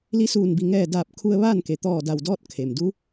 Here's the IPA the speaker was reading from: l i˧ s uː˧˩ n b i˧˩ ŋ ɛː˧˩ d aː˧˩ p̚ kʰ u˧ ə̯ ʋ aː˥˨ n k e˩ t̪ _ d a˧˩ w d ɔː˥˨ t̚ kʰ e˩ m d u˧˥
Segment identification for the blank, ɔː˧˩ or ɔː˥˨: ɔː˧˩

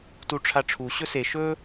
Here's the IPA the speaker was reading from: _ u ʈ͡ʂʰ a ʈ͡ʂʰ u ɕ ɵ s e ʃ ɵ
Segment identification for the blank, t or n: t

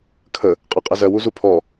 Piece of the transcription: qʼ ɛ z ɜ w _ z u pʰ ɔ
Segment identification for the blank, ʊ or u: u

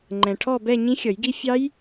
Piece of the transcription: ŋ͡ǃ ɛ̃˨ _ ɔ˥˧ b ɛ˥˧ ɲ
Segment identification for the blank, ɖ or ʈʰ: ʈʰ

